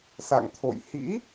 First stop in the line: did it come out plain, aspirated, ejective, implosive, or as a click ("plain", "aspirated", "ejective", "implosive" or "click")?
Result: aspirated